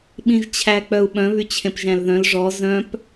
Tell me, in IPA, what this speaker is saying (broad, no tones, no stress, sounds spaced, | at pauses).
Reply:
ɓ ĩ ʒ t͡ɕʰ æ k͡p œ u̯ ɓ œ̃ β y t͡ɕʰ ẽ p ʒ æ̃ l ð œ̃ l ʐ ɔ z œ̃ p